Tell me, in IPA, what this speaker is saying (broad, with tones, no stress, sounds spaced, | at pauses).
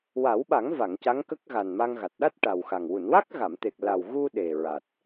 w a˨˩˦ w ɓ a˨˩˦ ŋ v a˨˩˨ ŋ c a˧˥ ŋ k ə˦˥ k̚ ɣ a˨˩ n m a˧ ŋ ɣ a˨˩ t̚ ɗ a˦˥ t̚ ʈ a˨˩ w x a˨˩ ŋ w u˨˩˨ n w a˦˥ k̚ ɣ a˨˩˨ m t̪ e˨˩ k̚ l a˨˩ w ɣ u˧ ɗ e˨˩ ɹ a˨˩ t̚